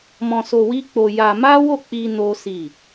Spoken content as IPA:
mɔ̃˧so˧ wi˦k͡po˧ja˧ ma˦wo˦˨k͡pi˧ no˦si˦˨

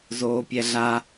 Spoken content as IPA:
zoːpʲɛɮa

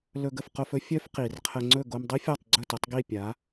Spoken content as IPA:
lɵ˧ɡə˥˩fqo˧fɵ˥ fʲœ˥fqi˩rqʰə˧ ŋ͡ǀɵ˥˩ɡo˧mdˤi˥fʲɔ˥˩tˤ ɡ͡ǀɵ˥˩tɵ˩˥tˤɡi˥˩ pʲa˩˥

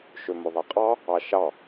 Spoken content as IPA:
ʃømoðˤeqʼɑ | ɑʃɑ

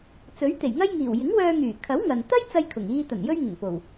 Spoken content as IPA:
t͡sɵ˨˥ɥt̪e˨˩jŋɐ˥jŋiː˨˩w jɪ˨˥ŋwœː˧ŋyː˨˩kʰɐ˨˥w ŋɐ˨n t̪ɐ˥j t͡sɐ˥jkʰʊ˨˩ŋ iː˧t̪ɐ˨˩n jɵ˥ɥŋɪ˨˩ŋpo˨˩w

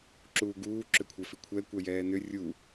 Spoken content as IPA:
ǁuːɡuː ǁʏkʷʰɛfikʷʰɛ kʷɛjɛːnʏ rʲu

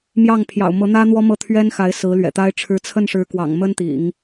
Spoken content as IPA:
mjɑ˥˩ŋ pʰjɑ̰˨˩ʊ̯mɤ˧˥n̪ä˥ n̪wɔ˥mɤ˥˩ t̪ʰɥɛ˥nxa˧˥ɪ̯ sɹ̩˧˥lɥɛ̰˨˩t̪a˥ɪ̯ ʈ͡ʂʰɻ̩˧˥t͡sʰə˥˩nʂɻ̩˧˥kwɑ̰˨˩ŋ mə˥nt̪ḭ˨˩˦ŋ

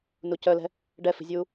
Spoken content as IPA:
nucœlɛ̤ | ɖɛfi̤zʲuː

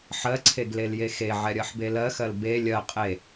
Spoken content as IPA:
ħɜǀʰeɡlelje xeʕɛɾʲɜħbe lɜxɜl be lʲɜ qʼe

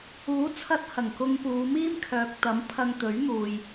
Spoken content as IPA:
uː˨˥t͡sʰɐ˧t̚ hɐ˨˩ŋkʊ˧ŋpuː˨˧ miː˥mkʰœː˨k̚t̪ɐ˨˥m pʰɐ˧ŋt̪ɵ˨˥ɥn̪uː˨j

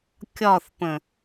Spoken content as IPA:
kʲɒθpə̃

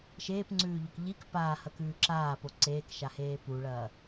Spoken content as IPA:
ʃeːpŋ͡ǀʉːʎok ʎik paːhɐkʉː ǁaːpo ǀeːkʃaheː puɭɐː

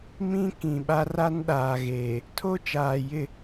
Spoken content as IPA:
mĩ˦ kĩ˨ɓa˦r a˦nɗaː˨ɣeː˨ | tʰo˦t͡ʃaː˨jɪ˦˨

